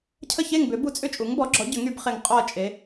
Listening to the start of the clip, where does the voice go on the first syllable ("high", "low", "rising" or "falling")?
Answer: falling